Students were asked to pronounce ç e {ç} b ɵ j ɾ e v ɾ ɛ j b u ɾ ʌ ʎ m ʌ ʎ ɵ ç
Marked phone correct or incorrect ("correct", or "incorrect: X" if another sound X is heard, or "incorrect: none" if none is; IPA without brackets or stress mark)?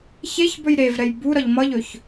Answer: correct